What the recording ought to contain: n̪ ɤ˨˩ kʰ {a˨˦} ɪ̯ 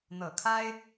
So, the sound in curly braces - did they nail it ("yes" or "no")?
no